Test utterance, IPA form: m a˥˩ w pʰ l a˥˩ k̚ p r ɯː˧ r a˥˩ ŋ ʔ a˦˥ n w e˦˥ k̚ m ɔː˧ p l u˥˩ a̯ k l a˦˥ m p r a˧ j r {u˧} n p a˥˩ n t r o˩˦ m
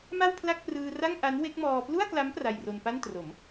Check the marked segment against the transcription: incorrect: o˧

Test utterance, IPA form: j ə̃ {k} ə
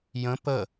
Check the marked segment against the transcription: incorrect: p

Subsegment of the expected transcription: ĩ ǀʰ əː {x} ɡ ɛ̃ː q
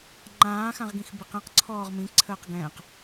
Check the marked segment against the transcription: incorrect: q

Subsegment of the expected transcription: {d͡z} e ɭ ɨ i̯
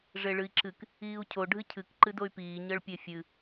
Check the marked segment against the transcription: incorrect: ʐ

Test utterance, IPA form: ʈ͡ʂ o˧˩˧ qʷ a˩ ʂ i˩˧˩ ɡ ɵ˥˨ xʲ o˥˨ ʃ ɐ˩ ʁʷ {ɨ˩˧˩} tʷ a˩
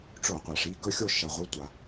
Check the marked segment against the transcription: correct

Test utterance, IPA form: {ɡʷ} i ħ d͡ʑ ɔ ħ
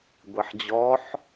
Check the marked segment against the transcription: correct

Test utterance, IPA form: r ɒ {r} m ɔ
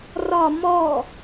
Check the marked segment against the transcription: incorrect: none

